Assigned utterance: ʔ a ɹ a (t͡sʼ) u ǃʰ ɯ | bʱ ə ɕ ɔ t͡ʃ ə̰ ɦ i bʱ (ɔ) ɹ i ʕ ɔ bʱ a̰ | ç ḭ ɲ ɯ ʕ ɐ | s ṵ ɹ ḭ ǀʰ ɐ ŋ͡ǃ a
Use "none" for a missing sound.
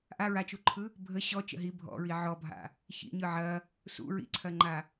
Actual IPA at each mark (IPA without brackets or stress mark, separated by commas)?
t͡ʃ, ɔ̰